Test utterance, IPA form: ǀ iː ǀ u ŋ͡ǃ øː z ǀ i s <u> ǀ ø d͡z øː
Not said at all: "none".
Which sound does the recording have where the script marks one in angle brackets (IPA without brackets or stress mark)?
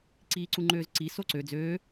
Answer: o